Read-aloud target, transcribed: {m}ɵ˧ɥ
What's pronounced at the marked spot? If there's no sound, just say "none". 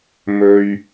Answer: m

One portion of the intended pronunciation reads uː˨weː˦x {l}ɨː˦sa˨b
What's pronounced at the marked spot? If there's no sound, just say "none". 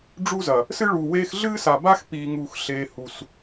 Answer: ɮ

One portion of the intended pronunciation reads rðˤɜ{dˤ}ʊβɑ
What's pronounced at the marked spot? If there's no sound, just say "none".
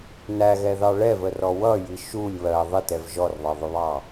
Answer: ðˤ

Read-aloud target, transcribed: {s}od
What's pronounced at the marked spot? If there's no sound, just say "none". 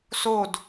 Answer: s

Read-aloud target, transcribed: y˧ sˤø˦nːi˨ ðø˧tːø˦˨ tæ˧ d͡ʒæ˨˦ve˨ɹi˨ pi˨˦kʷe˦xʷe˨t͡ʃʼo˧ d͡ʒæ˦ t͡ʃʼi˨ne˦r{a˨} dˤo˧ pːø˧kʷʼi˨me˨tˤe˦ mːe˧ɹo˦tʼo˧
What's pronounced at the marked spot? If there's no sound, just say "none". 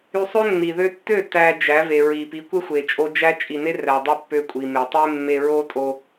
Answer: æ˨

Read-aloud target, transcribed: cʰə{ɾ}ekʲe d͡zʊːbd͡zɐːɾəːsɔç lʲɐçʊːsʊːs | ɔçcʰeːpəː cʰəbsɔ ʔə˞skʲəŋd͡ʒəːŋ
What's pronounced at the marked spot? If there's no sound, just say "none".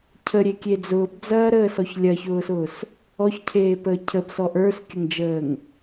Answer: ɾʲ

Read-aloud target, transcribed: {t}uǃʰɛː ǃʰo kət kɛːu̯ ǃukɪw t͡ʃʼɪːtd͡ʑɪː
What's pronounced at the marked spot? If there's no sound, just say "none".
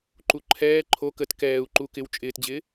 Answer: ǃ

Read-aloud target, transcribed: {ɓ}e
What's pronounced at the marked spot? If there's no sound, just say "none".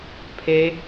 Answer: pʰ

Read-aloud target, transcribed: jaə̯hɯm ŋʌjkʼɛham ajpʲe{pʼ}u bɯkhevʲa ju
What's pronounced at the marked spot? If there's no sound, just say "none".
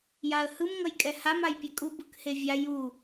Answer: kʼ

